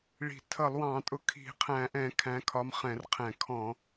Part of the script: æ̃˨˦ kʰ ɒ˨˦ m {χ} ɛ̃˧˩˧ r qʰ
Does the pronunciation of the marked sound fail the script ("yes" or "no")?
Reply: no